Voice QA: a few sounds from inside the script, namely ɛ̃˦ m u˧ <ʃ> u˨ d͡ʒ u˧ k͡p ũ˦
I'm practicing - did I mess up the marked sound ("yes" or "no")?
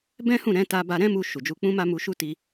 no